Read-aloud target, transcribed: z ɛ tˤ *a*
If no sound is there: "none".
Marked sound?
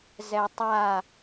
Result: a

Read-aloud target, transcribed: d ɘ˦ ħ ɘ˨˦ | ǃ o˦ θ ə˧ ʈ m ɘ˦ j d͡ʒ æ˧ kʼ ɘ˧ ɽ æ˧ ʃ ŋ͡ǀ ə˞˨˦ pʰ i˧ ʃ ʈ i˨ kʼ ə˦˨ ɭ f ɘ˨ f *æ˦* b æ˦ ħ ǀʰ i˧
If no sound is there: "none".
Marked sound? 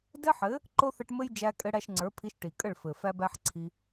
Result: æ˦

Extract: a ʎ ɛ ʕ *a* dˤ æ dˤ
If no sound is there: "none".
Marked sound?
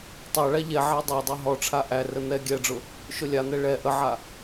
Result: æ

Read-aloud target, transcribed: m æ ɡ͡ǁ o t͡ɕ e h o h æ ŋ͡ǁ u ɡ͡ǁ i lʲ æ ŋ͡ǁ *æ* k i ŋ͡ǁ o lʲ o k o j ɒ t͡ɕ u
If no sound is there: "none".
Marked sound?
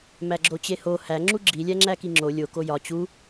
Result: æ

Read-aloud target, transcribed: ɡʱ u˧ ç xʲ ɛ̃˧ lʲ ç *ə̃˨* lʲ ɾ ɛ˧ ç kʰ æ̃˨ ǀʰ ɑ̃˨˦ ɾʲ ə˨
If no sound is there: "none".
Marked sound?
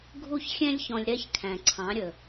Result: ɔ̃˨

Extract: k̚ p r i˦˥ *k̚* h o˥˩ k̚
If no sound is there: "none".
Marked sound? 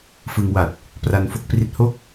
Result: t̚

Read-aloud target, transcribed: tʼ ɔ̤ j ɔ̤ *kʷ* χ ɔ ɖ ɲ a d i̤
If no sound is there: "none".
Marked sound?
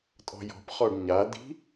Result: p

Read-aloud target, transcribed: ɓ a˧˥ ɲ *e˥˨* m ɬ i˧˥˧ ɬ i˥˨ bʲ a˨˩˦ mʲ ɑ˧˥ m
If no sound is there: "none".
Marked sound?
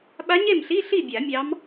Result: e˥˨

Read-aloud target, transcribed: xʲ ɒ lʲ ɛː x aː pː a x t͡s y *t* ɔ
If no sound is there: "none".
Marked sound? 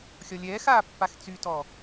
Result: t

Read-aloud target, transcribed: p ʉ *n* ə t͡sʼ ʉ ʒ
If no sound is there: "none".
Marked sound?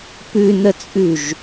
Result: n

